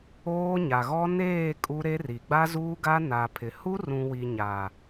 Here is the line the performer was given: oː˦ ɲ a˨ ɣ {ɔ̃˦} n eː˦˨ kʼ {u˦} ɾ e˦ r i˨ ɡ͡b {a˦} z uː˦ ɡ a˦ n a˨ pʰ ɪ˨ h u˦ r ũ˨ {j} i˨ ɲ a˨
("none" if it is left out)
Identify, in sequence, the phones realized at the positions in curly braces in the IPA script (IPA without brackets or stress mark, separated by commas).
ɔ˦, u˦, a˦, w